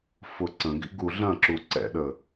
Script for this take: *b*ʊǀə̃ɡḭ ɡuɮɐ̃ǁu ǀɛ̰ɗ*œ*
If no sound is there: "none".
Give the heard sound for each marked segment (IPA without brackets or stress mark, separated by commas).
f, ə